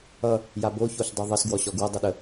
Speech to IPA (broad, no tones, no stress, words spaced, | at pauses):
ʌ | jabo çoɬdˤuðˤʌs ɡwɔɕɔɡwɐ dˤɐɗə